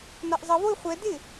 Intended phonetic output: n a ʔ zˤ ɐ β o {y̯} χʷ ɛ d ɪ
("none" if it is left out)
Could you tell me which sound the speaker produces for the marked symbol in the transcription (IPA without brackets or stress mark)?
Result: y̯